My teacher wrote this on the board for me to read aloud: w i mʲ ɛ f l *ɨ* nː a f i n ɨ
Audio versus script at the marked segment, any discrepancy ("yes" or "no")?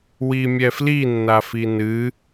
yes